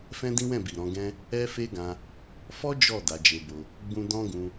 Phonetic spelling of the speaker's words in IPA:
f ɛ̃˦ d ĩ˦ w ɛ̃˦˨ b i˨ ɾ ɔ̃˨˦ ɡ ɛ̃˦ | ɛ˦ f e˦ ɡ ã˧ | f ɔ˦ d͡ʒ ɔ˦˨ d a˨˦ d͡ʒ e˧ b o˧ | ɡ͡b ũ˦ d ɔ̃˦ ɡ ũ˧

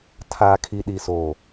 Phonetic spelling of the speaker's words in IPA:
tʰ aː˨ kʰ i˨ ɗ i˨ s oː˨

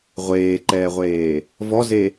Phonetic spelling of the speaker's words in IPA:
ʁʷ eː ǃ ɛː ʁʷ eː | v ɔ z e

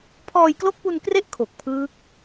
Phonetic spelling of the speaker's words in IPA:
pʰ ɔː˧ j k l o˦˥ k̚ p u˧ n k r e˦˥ ʔ kʰ o˨˩ k̚ pʰ ɯː˦˥ k̚

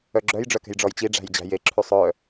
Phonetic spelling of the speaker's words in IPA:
œ ɡ͡ǁ œ j ɖ͡ʐ œ k ɛ̤ j ɖ͡ʐ ɔ j t͡ɕ i ɖ͡ʐ æ̤ j d͡ʑ æ̤ j e ǁʰ ʉ sˤ œ

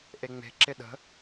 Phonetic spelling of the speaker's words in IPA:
ʔ e ŋ͡m e̤ ǁ ɪ ɗ ə̤

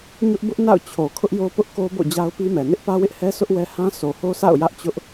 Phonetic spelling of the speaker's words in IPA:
ɲ ʊ˦ ʔ b ʊ˦ ʔ n a̰˦˨ ʊ̯ t͡ɕʰ o˨ kʰ ʊ˦ ʔ j o˦ p ʊ˦ ʔ k o˦ b o̰˦˨ d͡ʑ a˦ ʊ̯ p i˦ m ɛ˨ n ɪ˦ ʔ p ä˦ w ɪ˦ ʔ h ɛ˦ s ʊ˦ ʔ w ɛ˦ h ã˦ sʰ o˨ h o˦ s a̰˦˨ ʊ̯ j ä˦ ʔ t͡ɕ ʊ˦ ʔ

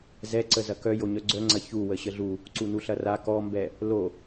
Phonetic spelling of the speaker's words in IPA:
z ɛ ǀ ə z ɐ k œ j o ɲ œ ɡ͡ǀ œ ŋ͡ǀ ɐ ç u w ə ɕ ə ɮ u | ǀ u n u ɬ ɐ r a k ɔ m b ɛ | l o

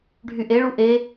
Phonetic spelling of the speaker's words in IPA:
ɖʱ y ʔ e ɭ u ʔ e

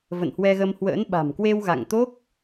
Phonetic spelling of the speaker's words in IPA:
v ə̰˧˨ n h w ɛ˧ ɣ ə˧ m h w ə̰ː˧˥ n ɓ a̤˨˩ m k w e˧ w ɣ a̰˧˨ ŋ t̪ o˦˥ k̚

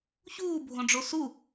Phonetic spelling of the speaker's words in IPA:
ç uː bʱ õ ɖ͡ʐ o s u

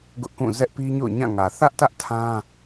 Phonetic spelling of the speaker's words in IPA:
ɡ ʊ˦ ʔ k ũ˦˨ z ɛ˦ ʔ p i˦ ɲ o̰˦˨ ʊ̯ ɲ ã˦˨ ŋ ä˨ θ ä˦ ʔ t ä˦ ʔ tʰ ã˦

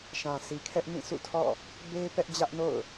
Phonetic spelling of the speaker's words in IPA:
ʃ ã˨ sʰ i˨ kʰ ɛ˦ ʔ m ĩ˦˨ s ṵ˦˨ tʰ ɔ̰˦˨ | b e˦ p ɛ˦ ʔ d͡ʑ ä˦ ʔ n o̰˦˨ ʊ̯

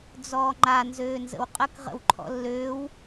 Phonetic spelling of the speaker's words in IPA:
d͡z ɔː ŋ͡ǃ a n z øː n z ə̰ w qʼ ə k ʁ ə̰ w ǃʰ ɔ̰ lː øː w

